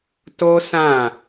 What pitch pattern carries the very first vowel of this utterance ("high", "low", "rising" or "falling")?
high